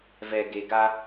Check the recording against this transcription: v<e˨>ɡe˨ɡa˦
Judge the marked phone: incorrect: ɛ˨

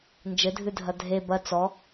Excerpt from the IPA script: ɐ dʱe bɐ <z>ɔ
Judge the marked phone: incorrect: t͡s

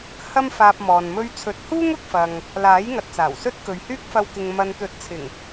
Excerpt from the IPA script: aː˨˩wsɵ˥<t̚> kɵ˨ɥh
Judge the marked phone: correct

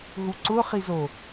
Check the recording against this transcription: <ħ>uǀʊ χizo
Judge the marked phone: incorrect: ɦ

